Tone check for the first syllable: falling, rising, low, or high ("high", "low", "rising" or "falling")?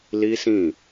high